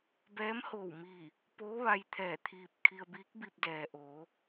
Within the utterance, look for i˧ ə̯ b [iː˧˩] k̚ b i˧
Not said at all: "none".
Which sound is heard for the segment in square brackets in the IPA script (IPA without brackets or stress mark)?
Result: iː˧˥